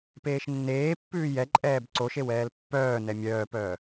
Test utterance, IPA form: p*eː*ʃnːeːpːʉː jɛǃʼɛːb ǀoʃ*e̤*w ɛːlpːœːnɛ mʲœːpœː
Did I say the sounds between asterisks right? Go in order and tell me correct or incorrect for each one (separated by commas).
correct, incorrect